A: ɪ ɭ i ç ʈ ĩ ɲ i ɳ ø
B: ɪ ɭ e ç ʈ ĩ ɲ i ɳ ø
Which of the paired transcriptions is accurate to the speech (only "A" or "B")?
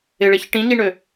B